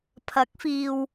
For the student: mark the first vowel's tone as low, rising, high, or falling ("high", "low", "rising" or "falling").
rising